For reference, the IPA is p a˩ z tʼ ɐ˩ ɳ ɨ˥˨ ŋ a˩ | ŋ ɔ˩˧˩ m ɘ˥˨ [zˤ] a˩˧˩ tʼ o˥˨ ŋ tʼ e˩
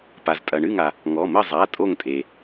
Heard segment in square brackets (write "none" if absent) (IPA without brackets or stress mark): zˤ